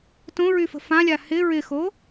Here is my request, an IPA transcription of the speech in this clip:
t õ ɹ y f ə̤ f ã lʲ a h ɪ ɹ ɪ x o

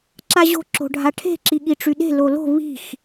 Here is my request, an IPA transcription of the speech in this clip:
ǁ a ʑ o̤ ǁ o̤ ɖʱ a ʈʰ e̤ ǁ i ɠ i ʈ͡ʂ y ɗ e̤ l o l o̤ β i̤ x

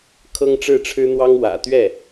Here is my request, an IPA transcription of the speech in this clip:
kʰ ɤ˥ ŋ ʈ͡ʂ ɻ̩˥˩ ʈ͡ʂʰ ɻ̩˥ n̪ w ɑ˥ ŋ w ä̰˨˩ t̪ ɥ ɛ˥˩

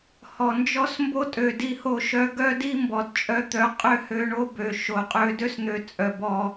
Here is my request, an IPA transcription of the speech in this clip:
h ɔ˨ n d͡ʒ ɔ˦ s m b o˦ tʼ ø˨ d i˧ h o˧ ʃ œ˧ ɡ œ˦ d i˦ m b ɔ˨ d t͡ʃʼ œ˧ t̪ œ˨˦ qʼ ø˦ h ø˧ ɳ o˦ b ø˨ ʃ o˨ qʼ ø˧ d ø˦ s n̪ ø˧ t͡sʼ œ˨ b ɔ˧

